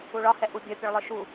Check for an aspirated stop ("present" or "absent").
absent